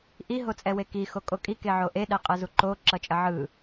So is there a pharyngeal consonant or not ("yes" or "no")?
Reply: yes